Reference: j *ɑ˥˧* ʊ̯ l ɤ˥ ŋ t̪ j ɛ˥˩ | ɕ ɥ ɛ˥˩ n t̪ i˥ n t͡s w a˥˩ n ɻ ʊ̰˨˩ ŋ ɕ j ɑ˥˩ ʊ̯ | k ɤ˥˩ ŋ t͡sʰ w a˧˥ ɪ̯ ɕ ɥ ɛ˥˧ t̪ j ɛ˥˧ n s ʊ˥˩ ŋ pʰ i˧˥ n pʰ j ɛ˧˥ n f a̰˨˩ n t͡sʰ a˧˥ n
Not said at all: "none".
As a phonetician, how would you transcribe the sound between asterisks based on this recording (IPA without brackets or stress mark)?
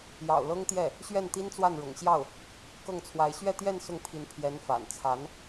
ɑ̰˨˩